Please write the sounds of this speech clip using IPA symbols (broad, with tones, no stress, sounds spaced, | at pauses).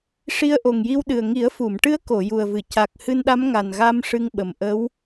ʂ i˧˥ ə̯ ʔ o˨˩ ŋ j i˧ w ɗ ɨ˨˩ ə̯ ŋ i˨˩˦ ə̯ f u˨˩˨ m ʈ ɨ˧˥ ə̯ k o˨˩˨ j u˨˩ ə̯ v ɨ˨˩˨ c a˨˩ k̚ h ɨ˧ n ɗ a˧˥ m ŋ a˨˩ n ɣ a˧ m ʂ ɨ˧ ŋ ɓ ə˨˩ m ʔ ə˧˥ w